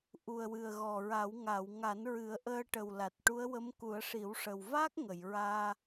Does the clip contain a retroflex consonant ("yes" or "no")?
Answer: yes